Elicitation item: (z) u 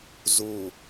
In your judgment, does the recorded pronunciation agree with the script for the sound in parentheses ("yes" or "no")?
yes